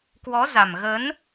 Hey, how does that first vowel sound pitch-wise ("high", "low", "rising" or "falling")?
rising